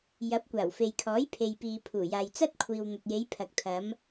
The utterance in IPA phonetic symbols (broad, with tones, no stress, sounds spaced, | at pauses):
j ɐ˨˥ p̚ kʷ aː˨˩ w f e˨ j kʰ ɔː˨˥ j pʰ e˨ j p iː˨ pʰ uː˨˩ j aː˨ j t͡s ɐ˥ t̚ kʷʰ iː˨ w n̪ ɐ˨ t̚ j e˨˧ j pʰ ɐ˨ k̚ t̪ʰ ɐ˨˧ m